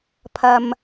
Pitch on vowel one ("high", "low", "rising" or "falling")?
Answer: low